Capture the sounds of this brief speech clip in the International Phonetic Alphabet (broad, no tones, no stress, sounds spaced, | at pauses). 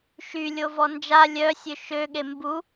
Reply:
ʃ y lʲ o v ɔ n d͡ʒ a lʲ œ sʲ ø ʃ ø ɠ e m b u